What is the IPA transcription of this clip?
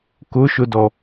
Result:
k ʊ ʃ ʊ d ɔ

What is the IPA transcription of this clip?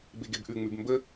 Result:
b e ɡ e b ʔ ʉ ŋ͡m ʉ b m b ə

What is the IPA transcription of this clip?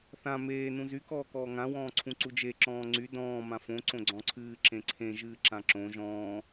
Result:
θ ã m eː n ũ z y k ɔː k ɔː ŋ ã w ɔ̃ː ǀʰ ũ ǀ u d͡ʒ e ǁ ɔ̃ː ŋ͡ǀ y d ɔ̃ː m ã f õ ǀ õ ɡ͡ǀ ɔ̃ ǀʰ ɨː ǁ ẽ ǀʰ ẽ ʒ ɨː ǁ ã ǁ õ ʒ ɔ̃ː

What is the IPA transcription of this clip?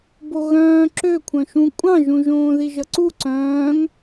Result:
b o ɣ œ̃ː ǁ ø kʷʰ œ̃ ʃ ũ kʷʼ ɑ̃ ʒ ũ ʒ õː ð i ʒ ʌ ǀ u ǀ œ̃ː ŋ

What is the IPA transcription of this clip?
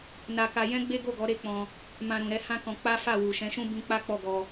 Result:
n a˦ k a˦ j ɛ̃˦ ɡ͡b e˦ ɡ o˦˨ ɡ ɔ˨˦ ɾ e˦ k͡p ɔ̃˧ | m ã˧ ɾ ũ˨ ɾ ɛ˨˦ h ã˦ k ɔ̃˧ k͡p a˦ f a˦˨ w u˨ ʃ ɛ̃˨˦ ʃ ũ˦ b ĩ˦ k͡p a˦ k͡p ɔ˦˨ ɡ ɔ˧

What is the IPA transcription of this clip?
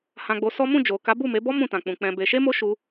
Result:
h ã˧ ɡ͡b o˧ s ɔ˦ m ũ˦˨ d͡ʒ o˨ k a˨˦ b u˦˨ m e˨˦ b ɔ˦ m ũ˦˨ t ã˨ k͡p ũ˨ k͡p ɛ̃˧ b e˧ ʃ e˦ m o˦ ʃ u˧

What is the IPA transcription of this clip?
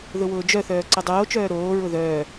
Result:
ð ʊ w ʊː d͡ʒ œ θ œː ǀ œ dˤ oː t͡ʃ œː ɾ oː ɹ ʊ ð œː

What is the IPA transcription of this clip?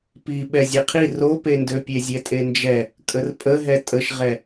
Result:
p i ɓ ɛ zʲ e qʰ i r o p e n d ø pʲ e zʲ ɛ tʼ e n d͡ʒ ɛ | kʼ ə r pʼ ə ɦ ɛ tʼ ə ʃ ʁ ɛ

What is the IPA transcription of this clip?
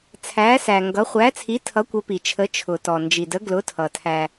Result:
t͡sʰ æ˧˥ s æ˨ ŋ ɡ ʌ˧˥ χʷ æ˧˥ t͡sʰ i˧˥ tʰ ʌ˧˥ kʷ ə˧˥ p i˨ t͡ʃʰ ə˧˥ t͡ʃʰ ʊ˨ t ɔ˨ n d͡ʒ i˨ d ə˧˥ ɡ l ʊ˧˥ tʰ ʌ˨ tʰ æ˨

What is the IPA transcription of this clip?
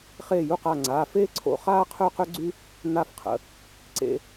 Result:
χ eː˧˩ j u˧˩ q a˧˩ ŋ͡ǀ aː˩˧˩ f eː˥ ǀʰ o̰˧˩ χ aː˥ qʰ øː˥ q ø˥ ɡ͡ǀ y˥ | n a˧˩ f qʰ ə̰˩˧˩ | ǀ ḛ˧

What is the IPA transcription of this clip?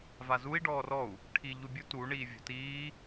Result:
v a z u i̯ ɖ ɔː r ɔ u̯ | ʈʰ i ʎ u bʲ u t u ɳ iː vʲ o̤ t iː

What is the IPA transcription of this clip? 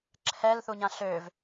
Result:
ǁʰ ɛ l θ u ɲ ã ɬ ø v

